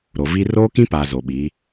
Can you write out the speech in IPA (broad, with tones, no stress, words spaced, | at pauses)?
ɾo˨vi˦ roː˦kĩ˦paː˨ zo˨ɓiː˨˦